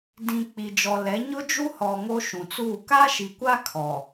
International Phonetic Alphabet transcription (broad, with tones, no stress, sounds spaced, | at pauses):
d ĩ˨ k͡p i˨ d͡ʒ ɔ˨ l ɛ˨˦ ɲ ʊ˦ d͡ʒ u˦ h ɔ˨ ŋ o˦ ʃ ũ˨ t͡s uː˦˨ k a˦ ʃ i˨ kʷ a˦ kʰ ɔ˨